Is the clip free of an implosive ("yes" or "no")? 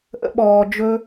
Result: no